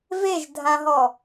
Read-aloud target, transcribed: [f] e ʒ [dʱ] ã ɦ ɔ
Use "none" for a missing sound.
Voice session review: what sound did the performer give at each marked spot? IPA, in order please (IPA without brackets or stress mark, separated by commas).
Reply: v, dʱ